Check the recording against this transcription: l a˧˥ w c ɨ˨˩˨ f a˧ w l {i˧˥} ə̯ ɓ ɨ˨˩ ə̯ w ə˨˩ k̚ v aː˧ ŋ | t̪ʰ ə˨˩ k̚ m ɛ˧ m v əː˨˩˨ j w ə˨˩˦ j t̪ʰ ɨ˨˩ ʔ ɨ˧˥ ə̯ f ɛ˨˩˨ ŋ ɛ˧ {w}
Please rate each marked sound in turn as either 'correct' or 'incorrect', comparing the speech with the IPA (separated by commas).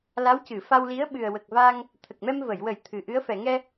correct, incorrect